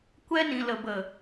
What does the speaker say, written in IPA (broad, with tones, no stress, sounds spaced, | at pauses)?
kʷ ɛ˧ n ĩ˨ l ə˨ b ə˨